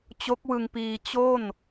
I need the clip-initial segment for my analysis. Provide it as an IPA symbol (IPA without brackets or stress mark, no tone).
t͡ɕ